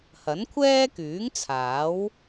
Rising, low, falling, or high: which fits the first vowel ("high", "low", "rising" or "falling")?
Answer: rising